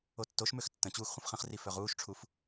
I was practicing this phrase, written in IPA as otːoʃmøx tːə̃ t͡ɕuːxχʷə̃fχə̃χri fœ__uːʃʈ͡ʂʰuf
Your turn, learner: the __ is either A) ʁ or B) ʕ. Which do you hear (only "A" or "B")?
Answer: A